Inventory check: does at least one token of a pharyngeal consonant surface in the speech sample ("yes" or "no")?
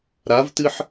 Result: yes